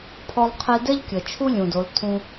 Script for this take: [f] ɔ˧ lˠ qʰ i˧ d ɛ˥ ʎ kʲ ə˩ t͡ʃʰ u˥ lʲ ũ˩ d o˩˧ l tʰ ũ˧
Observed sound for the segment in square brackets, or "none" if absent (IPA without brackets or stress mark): pʰ